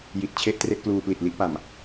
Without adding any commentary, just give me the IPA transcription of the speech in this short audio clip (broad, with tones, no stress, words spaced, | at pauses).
ji˨˩t̚t͡ɕʰe˥˩ʔ tre˥˩ʔkluː˧pli˨˩t̚ li˥˩ʔpa˨˩m